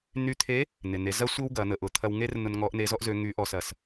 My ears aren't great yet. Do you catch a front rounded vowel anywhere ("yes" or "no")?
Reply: yes